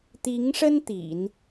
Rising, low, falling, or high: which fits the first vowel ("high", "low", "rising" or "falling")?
rising